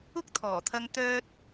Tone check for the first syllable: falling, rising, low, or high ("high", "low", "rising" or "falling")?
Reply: high